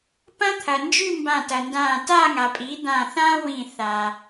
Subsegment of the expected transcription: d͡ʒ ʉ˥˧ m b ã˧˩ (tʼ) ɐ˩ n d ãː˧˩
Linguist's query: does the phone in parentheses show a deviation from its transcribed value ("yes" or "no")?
yes